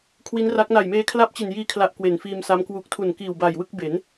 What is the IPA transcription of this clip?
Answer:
kʰ w i˦˥ n r a˦˥ k̚ n a˨˩ j m eː˧ kʰ l a˦˥ p̚ t͡ɕ i˨˩ n j iː˧ kʰ l a˨˩ ʔ k w e˨˩ n f iː˧ m s a˦˥ m k w u˨˩ k̚ tʰ u˨˩ n k iː˨˩ w b a˨˩ j w ɯ˥˩ k̚ b e˩˦ n

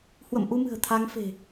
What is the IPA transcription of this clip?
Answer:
h w ə̰˧˨ m ʔ u˧ m ɨ̤˨˩ ə̯ t̪ʰ a˨˦ ŋ f e̤˨˩

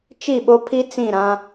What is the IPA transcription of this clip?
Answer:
t͡ʃ i˦˨ ɓ o˦ pʰ i˦ t͡s ĩ˦˨ ɾ ã˦

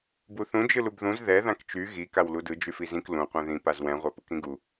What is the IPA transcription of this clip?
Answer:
b u θ ũ d͡ʒ ɯ l u b ð ũ z ð ɛ ð ã k t͡ʃ y ɣ i k a w l u d ɯ d͡ʒ y f i z ĩ k l ũ qʷ ɛ̃ ð ĩ p a z w ɛ̃ ʁʷ a p ɯ k ĩ ɡ u

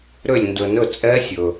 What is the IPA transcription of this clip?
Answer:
ɾ ø˥˩ lʲ n d ɵ˨˩˦ n ɵ˥˩ t͡sʼ ɛ˦˥ sʲ ɵ˩

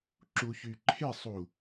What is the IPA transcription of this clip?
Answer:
ǁ u ç y ǃʰ e sˤ u

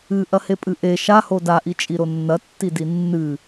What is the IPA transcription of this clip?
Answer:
ɨ ʔ ɐ h e pʼ ɨ ʔ e ʃ a h o d a ʔ i t͡ʃʼ i ɾ o nː ɐ tː i d i nː ɨ

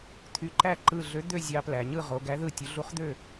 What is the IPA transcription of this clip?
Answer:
t̪ʰ y˨˥ ǃ æ˥˩ ǃ ɯ˧˩ ɮ ø˨˥ d̪ ø˥˩ zʲ ɑ˨˥ p l æ˩˧ ɲ ɯ˥˩ ʁ o˩˧ ɡ æ˨˥ ð ɯ˧˩ tʲ u˩˧ ɮ u˨˥ χ d̪ ø˥˩

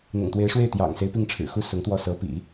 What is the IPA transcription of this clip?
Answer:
n̪ ʊ̰˨˩ ŋ t̪ w e˧˥ ɪ̯ ʂ w e˥˩ ɪ̯ t̪ j ɑ̰˨˩ ŋ s e˦ ɪ̯ p i˥˩ ŋ ʈ͡ʂʰ ɻ̩˨˩ x u˥ s ʊ˧˥ ŋ t̪ w ɔ˥˩ s ɤ˧˥ p ḭ˨˩˦

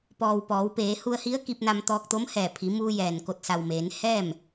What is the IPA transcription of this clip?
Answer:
p ɔː˩ w p ɔː˩˧ w p eː˩˧ h u˧ ə̯ h i˧˥ ə̯ k i˧ p̚ n a˧ m t̪ ɔː˧ k̚ t̪ o˧˥ m h ɛː˧˩ pʰ i˩˧ m uː˧ j ɛː˩ n k o˧˩ t̚ s a˩ w m eː˩˧ n h ɛː˥˨ m

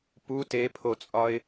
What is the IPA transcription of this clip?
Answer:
p u t e pʰ o t͡sʼ ɒ ɪ̯

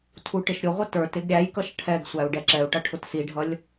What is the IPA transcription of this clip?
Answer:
tʰ u ʈ ɪ ʃ ɾʲ ʊ ʁʷ ə t ə˞ t ɪ ɡ ɾʲ æ j k ʌ ʃ ʈʰ ɛ ɡ sʷ æ u̯ ɖ ɛ ǁ ɛ u̯ ʈ ʌ ʈʰ ʊ t s i ɖʱ ʌ lʲ

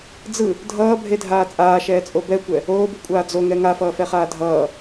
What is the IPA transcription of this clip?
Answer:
d͡z ɯ | dʱ ʌː bʱ e dʱ aː t͡sʼ aː ʃ ɛː t͡sʼ o b ɛ kʷ ɛ | oː b u kʷʼ aː d͡z o ŋ ɛ ŋ a f ʌː f ɛ χ aː dʱ ʌː

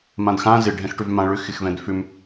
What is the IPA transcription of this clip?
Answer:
m ã d x ã z ɪ ɖʱ ɛ̃ x ʈ ʏ v m ã ɭ ʏ x ɪ x v ɛ̃ d f ʏ m

